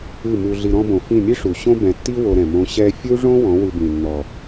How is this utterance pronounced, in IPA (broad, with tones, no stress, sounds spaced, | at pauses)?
ɨ˦˨ m u˧ ɮ i˧ ɾ ɔ̃˧ b õ˨ f ĩ˦˨ mʲ ɨ˦ ʂ u˨ ɕ õ˦ b ɛ̃˨ tː i˦ w o˧ ɾ ɛ̃˨ m õ˧ ɕ ɛ˧ fʲ u˦ ʐ õ˦ w ɔ̃˨˦ w ɨ˧ b ĩ˨ nː ɔ˨